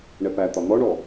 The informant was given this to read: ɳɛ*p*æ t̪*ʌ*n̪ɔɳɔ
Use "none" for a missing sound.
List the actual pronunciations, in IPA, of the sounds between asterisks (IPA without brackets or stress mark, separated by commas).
p, ɒ